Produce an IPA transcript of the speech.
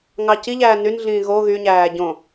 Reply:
ŋɑciʎæː nynɮĩː ɣo ɣyɲæː ɟõ

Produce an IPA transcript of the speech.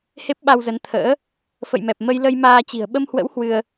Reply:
he˦˥p̚ɓa˧wzə˨˦n t̪ʰə̰ː˧˥ | fə̰˧˨jmɛ˨˩p̚mə˧j lə˧jmaː˧t͡ɕi̤˨˩ə̯ ɓə˧mhwə̰˧˥w hwɨ˧ə̯

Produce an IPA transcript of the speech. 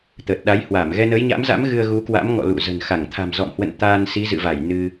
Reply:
t̪əː˨˩t̚ɗa˨˦jhwaː˧˩m ɣɛ˧nəː˨˦jɲa̰˧˥mza̰˧˥m ɣɨ˧ə̯ɣu˨˦kwa̰˧˥mŋɔ̰˧˨ lṵ˧˨ zə̤˨˩n xa˧˩ŋ t̪ʰa̤˨˩mzɔ̰˧˨mhwə̰˧˨n t̪aː˧nsi˨˦zɨ̰˧˨va˧˩j nɨ˧

